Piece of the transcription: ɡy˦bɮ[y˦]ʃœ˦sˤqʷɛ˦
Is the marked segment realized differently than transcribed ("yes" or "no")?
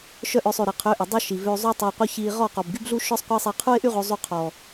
yes